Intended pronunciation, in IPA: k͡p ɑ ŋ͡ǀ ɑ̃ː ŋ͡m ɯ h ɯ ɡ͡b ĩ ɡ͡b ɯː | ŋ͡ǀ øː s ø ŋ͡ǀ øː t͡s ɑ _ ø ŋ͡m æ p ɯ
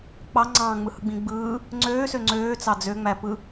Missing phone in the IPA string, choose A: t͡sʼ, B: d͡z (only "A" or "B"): B